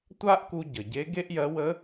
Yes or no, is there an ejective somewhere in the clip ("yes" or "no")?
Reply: no